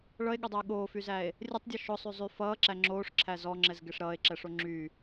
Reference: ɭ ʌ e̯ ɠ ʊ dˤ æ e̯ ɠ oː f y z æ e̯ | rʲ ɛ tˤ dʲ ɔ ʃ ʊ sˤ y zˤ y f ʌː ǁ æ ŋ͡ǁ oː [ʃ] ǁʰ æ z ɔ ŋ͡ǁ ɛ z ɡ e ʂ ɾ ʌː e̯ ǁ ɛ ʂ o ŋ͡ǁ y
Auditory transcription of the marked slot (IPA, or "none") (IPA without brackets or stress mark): ʂ